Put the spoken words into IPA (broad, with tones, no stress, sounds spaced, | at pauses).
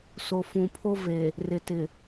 s o˨ f ũ˨ pʰ o˦ v e˨ | r ɪ˨ t ɪ˨